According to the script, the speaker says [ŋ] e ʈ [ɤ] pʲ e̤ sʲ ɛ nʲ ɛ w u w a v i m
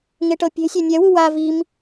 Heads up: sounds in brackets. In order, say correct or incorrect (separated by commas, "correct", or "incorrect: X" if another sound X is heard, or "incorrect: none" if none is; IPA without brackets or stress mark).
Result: correct, correct